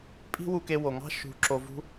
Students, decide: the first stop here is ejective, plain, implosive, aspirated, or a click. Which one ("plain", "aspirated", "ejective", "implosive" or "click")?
ejective